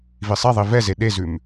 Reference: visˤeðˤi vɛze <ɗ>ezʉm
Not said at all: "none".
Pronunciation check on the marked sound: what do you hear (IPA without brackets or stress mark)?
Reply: ɗ